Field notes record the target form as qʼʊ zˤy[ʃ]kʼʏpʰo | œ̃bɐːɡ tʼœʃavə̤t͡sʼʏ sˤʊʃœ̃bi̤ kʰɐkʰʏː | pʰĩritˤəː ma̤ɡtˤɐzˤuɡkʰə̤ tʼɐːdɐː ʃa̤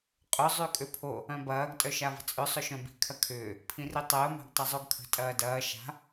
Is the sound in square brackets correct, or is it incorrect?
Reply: incorrect: none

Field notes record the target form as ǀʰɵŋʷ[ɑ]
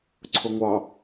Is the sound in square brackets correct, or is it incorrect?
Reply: correct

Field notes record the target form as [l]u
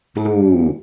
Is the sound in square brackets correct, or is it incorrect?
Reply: correct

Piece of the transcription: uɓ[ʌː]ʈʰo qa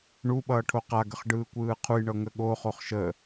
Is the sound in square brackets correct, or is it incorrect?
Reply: correct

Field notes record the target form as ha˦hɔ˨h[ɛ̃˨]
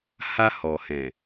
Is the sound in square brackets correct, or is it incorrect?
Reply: correct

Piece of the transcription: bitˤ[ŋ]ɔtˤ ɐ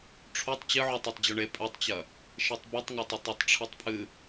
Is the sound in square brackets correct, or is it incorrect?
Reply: correct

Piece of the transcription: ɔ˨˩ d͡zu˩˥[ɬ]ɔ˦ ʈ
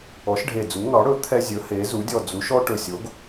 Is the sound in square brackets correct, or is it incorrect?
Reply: incorrect: ʃ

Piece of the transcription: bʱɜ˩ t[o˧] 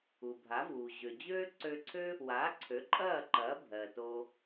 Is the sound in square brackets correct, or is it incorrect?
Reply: correct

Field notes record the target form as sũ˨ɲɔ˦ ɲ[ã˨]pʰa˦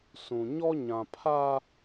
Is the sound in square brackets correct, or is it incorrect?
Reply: correct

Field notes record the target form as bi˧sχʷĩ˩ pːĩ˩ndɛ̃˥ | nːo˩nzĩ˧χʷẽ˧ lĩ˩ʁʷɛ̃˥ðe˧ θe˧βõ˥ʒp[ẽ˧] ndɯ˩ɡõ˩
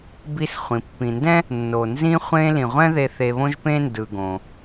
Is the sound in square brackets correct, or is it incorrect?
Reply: incorrect: ẽ˥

